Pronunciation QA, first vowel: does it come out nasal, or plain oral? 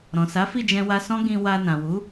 nasal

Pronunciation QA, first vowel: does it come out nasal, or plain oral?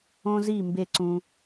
nasal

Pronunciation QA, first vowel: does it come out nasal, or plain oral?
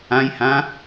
nasal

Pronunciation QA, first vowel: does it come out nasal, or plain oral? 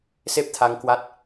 oral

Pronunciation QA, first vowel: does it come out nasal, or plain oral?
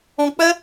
nasal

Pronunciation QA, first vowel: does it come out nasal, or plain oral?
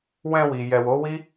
nasal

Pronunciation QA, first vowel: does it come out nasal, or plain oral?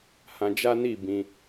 nasal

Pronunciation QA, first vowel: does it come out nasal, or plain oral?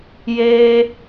oral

